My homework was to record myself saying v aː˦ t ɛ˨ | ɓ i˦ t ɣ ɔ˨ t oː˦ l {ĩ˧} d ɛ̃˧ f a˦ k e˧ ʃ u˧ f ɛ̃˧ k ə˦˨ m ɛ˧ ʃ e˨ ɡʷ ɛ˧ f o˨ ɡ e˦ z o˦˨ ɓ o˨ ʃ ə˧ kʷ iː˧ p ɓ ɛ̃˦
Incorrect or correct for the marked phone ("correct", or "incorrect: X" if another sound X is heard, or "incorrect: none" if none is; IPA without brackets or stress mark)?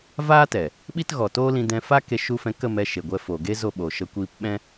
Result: correct